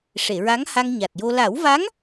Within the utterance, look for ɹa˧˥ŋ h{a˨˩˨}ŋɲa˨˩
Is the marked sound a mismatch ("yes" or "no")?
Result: yes